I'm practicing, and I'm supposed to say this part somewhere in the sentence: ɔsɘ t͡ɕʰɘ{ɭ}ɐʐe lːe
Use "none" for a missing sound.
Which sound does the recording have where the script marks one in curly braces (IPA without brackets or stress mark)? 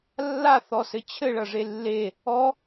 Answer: ɭ